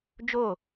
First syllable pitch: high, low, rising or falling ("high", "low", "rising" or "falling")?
falling